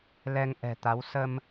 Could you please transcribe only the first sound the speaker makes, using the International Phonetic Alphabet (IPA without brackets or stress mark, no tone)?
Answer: l